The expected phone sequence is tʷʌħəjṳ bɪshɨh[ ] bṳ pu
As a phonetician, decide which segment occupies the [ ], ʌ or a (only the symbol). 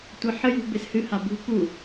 a